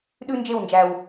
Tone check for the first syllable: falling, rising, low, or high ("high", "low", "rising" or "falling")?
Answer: high